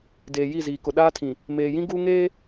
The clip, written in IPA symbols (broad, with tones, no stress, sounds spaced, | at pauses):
d eː˨ j i˦˨ z iː˨ k ʊ˨ ɗ aː˦ tʰ ĩ˨ | m eː˨ j ĩ˦ ɡ uː˦ ŋ eː˦